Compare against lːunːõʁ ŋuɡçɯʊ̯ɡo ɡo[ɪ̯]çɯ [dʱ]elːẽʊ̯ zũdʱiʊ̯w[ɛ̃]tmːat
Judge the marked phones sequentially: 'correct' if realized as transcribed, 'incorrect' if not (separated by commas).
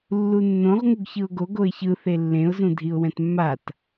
correct, incorrect, correct